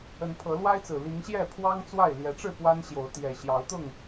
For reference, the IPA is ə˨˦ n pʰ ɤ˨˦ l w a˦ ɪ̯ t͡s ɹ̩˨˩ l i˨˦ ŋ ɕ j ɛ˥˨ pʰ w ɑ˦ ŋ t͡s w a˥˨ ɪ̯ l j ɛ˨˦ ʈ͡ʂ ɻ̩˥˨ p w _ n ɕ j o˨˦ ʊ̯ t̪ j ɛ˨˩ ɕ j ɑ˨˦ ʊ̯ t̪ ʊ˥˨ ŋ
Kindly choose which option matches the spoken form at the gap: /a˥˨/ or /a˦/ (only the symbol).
a˦